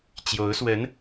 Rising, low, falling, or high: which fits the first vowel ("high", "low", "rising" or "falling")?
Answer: rising